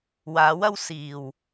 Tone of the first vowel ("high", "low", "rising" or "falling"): rising